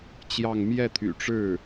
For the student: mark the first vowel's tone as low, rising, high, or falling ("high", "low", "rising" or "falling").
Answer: falling